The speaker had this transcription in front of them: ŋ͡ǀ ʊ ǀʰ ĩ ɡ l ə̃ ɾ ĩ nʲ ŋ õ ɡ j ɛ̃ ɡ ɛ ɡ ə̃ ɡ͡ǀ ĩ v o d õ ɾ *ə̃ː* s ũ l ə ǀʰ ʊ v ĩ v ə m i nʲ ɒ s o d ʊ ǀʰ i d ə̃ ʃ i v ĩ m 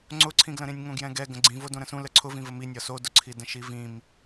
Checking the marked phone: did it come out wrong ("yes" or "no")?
yes